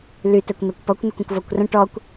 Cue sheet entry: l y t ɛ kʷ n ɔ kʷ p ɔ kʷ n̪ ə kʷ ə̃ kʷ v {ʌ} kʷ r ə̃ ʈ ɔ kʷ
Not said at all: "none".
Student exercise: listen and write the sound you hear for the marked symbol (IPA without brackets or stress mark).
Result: ɔ